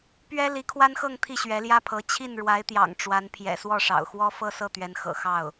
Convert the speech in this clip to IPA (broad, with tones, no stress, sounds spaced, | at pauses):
p ɥ ɛ˥ l i˧˥ kʰ w a˥ n x ɤ˥˧ ŋ t̪ʰ i˥˩ ɕ ɥ ɛ˧˥ l j ä˥ pʰ ɤ˧˥ t͡ɕʰ i˥˩ n ɻ w a˧˥ ɪ̯ t̪ j ɑ̰˨˩ ŋ ʈ͡ʂ w a˧˥ n pʰ j ɛ̰˨˩ s w ɔ˥˩ ʂ ɑ̰˨˩ ʊ̯ x w ɔ˥ f ɤ˥ s ɤ˥˩ t̪ ɥ ɛ˧˥ n x ɤ̰˨˩ x ɑ˥˩ ʊ̯